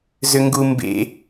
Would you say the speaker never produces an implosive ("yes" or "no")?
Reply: yes